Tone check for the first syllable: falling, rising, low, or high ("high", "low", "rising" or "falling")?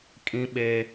high